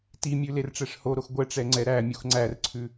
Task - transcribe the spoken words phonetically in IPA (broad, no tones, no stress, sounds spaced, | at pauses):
t i mʲ ʉ l e r ʈ͡ʂ ɛ ʂ h o ɾ o x ɡʷ ɛ ʈ͡ʂ ɛ ŋ͡ǀ ɛ ɾ æ mʲ u x ŋ͡ǀ æ r ǀʰ ʉ